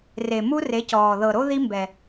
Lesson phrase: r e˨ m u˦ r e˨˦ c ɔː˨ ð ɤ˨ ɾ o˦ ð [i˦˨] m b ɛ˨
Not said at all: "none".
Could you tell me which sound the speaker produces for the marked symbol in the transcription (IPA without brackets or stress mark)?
i˦